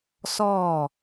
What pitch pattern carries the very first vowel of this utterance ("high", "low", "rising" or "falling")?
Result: falling